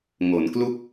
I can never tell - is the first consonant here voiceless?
no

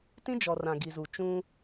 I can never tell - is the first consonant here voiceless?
yes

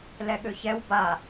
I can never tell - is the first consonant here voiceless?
no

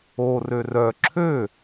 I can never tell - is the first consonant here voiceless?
no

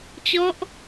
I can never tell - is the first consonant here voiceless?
yes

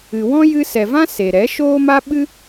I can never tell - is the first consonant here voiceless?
no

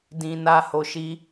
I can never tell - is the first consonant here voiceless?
no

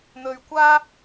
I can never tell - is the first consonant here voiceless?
no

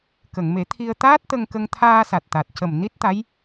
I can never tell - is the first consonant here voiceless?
yes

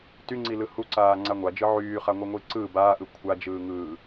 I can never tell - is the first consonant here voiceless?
yes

